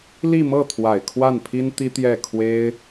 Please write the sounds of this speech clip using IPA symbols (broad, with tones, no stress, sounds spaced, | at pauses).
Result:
l i˥˧ m ɤ˥˩ t̪ʰ w a˨˩ ɪ̯ kʰ w a˥˩ n pʰ i˥ n t̪ i˥ t̪ j ɛ˥˩ kʰ w e˥ ɪ̯